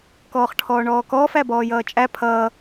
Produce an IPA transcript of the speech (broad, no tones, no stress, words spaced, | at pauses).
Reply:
kɔːχʈʰɔːɳɔːkɔːf æbɔːjʌːt͡ʃʼæ pʰʌː